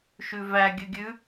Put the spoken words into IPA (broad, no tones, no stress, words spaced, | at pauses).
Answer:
ʃʉvæ ɡʲʉɡʲʉ